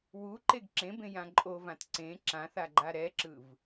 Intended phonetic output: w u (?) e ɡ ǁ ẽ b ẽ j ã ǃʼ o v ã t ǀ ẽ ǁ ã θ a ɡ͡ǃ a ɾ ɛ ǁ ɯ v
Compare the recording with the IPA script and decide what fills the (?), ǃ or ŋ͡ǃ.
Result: ǃ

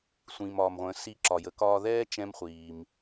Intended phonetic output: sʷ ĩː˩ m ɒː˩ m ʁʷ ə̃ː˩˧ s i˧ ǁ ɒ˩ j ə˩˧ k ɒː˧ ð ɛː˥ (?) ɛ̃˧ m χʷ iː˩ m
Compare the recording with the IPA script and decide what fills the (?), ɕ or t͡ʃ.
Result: t͡ʃ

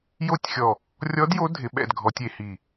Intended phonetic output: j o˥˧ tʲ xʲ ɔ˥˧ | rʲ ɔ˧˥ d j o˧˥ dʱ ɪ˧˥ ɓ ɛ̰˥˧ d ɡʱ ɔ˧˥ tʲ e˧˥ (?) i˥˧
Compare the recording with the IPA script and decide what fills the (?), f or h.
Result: h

